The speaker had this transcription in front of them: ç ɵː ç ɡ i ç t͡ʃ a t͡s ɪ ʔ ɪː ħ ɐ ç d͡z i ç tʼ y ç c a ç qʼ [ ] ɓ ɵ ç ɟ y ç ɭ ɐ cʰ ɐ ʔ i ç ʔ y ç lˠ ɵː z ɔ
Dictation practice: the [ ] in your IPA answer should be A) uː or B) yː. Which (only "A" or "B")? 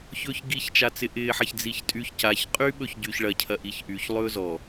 B